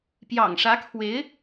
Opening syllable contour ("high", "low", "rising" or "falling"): low